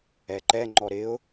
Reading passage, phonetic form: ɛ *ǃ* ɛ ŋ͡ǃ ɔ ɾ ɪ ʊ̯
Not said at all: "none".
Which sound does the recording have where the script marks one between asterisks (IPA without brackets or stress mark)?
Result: ǃ